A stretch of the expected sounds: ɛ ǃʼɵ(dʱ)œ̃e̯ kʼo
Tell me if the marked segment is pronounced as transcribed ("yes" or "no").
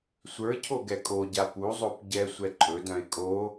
no